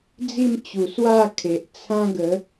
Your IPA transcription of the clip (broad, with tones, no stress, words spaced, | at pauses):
d͡zi˥˧mt͡ɕu˨˩ swa˥˧kʰe˨ʔt͡sʰã˦ ɡə˨˦